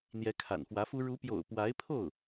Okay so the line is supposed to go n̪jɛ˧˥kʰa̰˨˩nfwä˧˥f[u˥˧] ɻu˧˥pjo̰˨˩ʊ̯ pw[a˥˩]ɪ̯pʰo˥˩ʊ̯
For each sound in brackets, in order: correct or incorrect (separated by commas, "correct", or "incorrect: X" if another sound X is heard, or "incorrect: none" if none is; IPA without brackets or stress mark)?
incorrect: u˥, incorrect: a˧˥